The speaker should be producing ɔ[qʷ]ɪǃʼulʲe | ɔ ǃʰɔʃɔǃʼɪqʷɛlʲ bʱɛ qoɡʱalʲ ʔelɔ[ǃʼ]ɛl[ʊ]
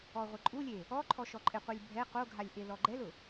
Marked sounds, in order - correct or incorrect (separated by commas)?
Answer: incorrect, incorrect, correct